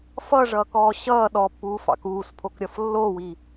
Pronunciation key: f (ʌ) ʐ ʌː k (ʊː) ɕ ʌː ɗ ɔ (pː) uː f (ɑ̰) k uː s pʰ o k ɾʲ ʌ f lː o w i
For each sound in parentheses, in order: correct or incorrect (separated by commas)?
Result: correct, incorrect, correct, correct